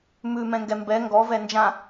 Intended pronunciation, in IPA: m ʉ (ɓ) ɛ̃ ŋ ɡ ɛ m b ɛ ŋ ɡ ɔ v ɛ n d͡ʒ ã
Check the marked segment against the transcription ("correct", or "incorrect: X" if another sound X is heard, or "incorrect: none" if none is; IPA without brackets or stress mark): incorrect: m